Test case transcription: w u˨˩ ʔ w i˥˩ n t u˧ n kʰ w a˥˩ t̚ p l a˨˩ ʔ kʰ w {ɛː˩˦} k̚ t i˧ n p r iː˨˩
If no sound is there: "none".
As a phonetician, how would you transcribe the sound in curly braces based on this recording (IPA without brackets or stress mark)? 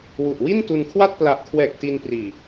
ɛː˨˩